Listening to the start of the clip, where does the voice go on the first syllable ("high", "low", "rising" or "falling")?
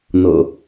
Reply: low